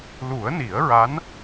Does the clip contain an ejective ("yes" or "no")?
no